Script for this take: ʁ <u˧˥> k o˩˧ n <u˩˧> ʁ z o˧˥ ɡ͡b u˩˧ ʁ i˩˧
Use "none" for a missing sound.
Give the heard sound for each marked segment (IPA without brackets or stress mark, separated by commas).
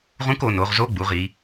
ũ˧˥, o˩˧